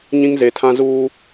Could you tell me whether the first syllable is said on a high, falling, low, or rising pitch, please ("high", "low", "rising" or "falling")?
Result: high